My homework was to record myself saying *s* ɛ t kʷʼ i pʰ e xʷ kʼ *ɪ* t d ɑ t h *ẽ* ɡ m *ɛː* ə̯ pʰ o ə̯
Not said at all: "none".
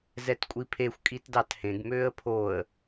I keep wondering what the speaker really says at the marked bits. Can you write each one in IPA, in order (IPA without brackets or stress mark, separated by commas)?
z, i, ẽ, øː